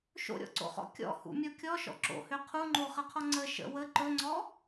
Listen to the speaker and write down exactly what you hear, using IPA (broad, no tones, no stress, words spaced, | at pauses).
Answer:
ʃo̰ɾʲɔ̰ǀo̰χɔ̰ kʲɔ̰ hṵmʲɔ kʲɔʃɔ̰ ǁo̰hø qʰuŋ͡ǃoχəqʰɔ ŋ͡ǀə ʃə̰ wə ǃɵŋ͡ǀɔ